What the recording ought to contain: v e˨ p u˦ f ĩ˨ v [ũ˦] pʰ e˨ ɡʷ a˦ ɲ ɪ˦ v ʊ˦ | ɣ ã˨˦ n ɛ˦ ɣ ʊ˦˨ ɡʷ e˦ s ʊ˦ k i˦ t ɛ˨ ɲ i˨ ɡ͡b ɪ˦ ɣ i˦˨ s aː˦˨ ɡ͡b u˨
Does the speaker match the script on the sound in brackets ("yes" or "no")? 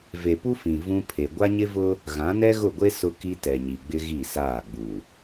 yes